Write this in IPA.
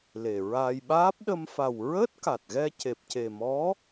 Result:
le˨˩ ɹaː˧j ɓaː˦˥p̚ ɗə˧mfa˨˩w ɹəː˦˥t̚ka˨˩t̚ɣɛ˧ ce˨˩p̚ce˨˩mɔ˧˥

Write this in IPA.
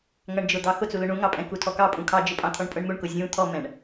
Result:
ŋʌɳd͡ʒʊd̪ɑ xʊt͡sulʊ ɳũŋɑpʼɛ̃ kutʰɔkɑ pʼũkʰɑd͡ʒʊpʼɑ̃ t̪ʰɔɳpʼʊɳmuɳ kʊzʲũ t̪ʰɔmɛ̃ɳ

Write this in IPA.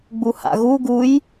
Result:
ɡ͡buha̰ɣu ɡuj

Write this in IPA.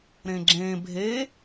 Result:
ɾẽɡ͡ǁẽ bʱe

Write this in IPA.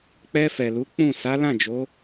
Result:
k͡pɛ˧fɛ˨lu˨˦ k͡pũ˦˨ sa˨˦lã˦˨d͡ʒo˨˦

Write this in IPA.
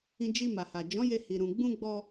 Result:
ĩ˧d͡ʒi˧ma˨ha˨ d͡ʒɔ̃˨˦je˧ hi˨ɾũ˨ ɡ͡bũ˧ɡ͡bɔ˧

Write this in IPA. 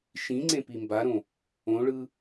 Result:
ʃĩŋ͡ǀẽ pimbaɾõ | õɭɯ

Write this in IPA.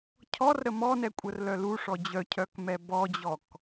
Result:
cʰɔrɾə mɔnɛkʷʼərlœ luʂɔ d͡ʑœcʰœkmɛ bɔd͡ʑɔk

